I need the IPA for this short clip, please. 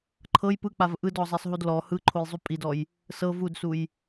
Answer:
ǃʰɤj pɯk͡pav ʔɯdɔzˤɛsˤɦud lɔ hɯǃʰojzˤu pʼidɔj | sɤ vudsuj

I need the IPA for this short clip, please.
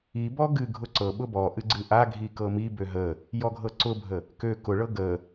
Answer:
ibɔ ɡɨ ɡʱʊǀɤɓʊ bɔʔɨ ɡ͡ǀɨʔaɡʱi kɤmibø ɦə | jɔɡʱɤǀʊbʱə | kø kʊɭɤ ɡə

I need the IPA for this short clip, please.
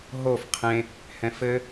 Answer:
ɦof qʰẽ | hɛ̃fɘ

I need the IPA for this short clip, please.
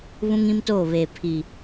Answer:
βũ˦ŋĩ˦mtoː˦˨βeː˨ pʰi˨

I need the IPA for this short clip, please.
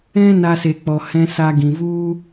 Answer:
ɛ̃˦na˧se˨k͡pɔ˨ hɛ̃˧sa˧ɡĩ˨ vu˦

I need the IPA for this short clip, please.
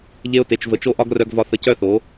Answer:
ʎe˧ʊ̯te˨t͡ʃ və˨t͡ʃo˧ʔɒ˧ɡ rœ˧ɡvɒ˧ θə˧cœ˦θo˨˦

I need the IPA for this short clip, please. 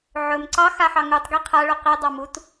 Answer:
ʕɵm ǀɑxaħɑ ŋutˤɡi qʰaɭɵ qidˤɑ mut

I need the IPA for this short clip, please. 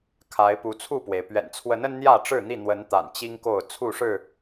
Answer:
kʰa˨˦ɪ̯pu˨˦t͡sʰu˥˨pwe˩ɪ̯ pɥɛ̰˨˩nt͡sʰwə˨˦n ə˦nn̪jä˥˨ʈ͡ʂɻ̩˥˨n̪i˥˨ n̪wə˨˦n t̪a̰˨˩n t͡ɕi˦ŋko˥˨ʊ̯ t͡sʰu˥˨ʂɻ̩˥˨

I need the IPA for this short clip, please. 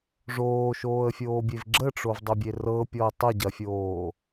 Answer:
ʐoːʃoːə̯fʲoːbʲev ɡ͡ǁəʈ͡ʂovdˤɐbʲe rɤpʲɔə̯ tˤəɟɐfʲoː

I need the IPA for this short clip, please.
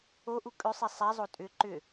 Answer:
oʔu kʼʏsˤi sˤɛzˤo tʼʏ ǃʏ

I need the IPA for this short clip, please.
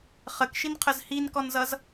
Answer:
χəkʃinqʰəz hinkɔnzʌz

